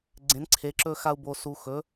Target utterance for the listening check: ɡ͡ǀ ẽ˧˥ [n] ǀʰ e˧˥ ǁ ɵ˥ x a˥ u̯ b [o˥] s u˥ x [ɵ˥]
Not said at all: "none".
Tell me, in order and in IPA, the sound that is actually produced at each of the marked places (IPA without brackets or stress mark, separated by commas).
n, o˥, ɵ˧˥